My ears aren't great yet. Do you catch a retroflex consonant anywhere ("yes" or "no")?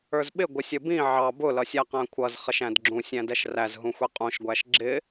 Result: no